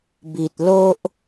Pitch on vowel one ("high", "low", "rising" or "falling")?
low